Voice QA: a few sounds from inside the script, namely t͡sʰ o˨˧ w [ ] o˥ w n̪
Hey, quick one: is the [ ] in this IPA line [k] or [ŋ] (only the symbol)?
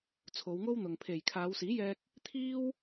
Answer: ŋ